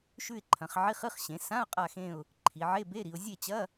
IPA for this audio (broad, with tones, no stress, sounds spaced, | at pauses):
ʃ ʉ˦˨ ɪ̯ ǃʰ ɐ̃˩˧ χ ʕ i˧˥˧ χ ɨ˧˥˧ χ ɕ ẽ˩˧ s ã˧˥˧ ʊ̯ qʼ a˦˨ x ẽ˦˨ ʊ̯ | ǃʰ i˩˧ ʕ e˧˥˧ b e˧˥˧ ɾ i˩˧ ʊ̯ zʲ e˦˨ t͡ɕ ɐ˧˥˧